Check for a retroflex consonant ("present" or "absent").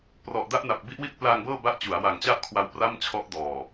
absent